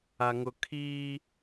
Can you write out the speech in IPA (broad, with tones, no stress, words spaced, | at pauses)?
a˨ ŋʊ˨ kʰiː˦